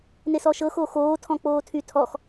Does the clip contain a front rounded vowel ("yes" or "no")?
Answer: yes